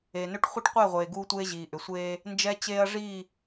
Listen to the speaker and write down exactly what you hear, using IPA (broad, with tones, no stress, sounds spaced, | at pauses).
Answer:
e˨ n ʏ˦ ʈ χʷ e˦ ʈ qʷ ɛ˦˨ ʁʷ eː˨ ɡ uː˦ tʷ eː˦ ʑ iː˨ ʔ ʏ˨ sʷ eː˦ | n d͡ʒ ɛ˦ t͡ɕ eː˦ ɐ̯ ʐ i˦˨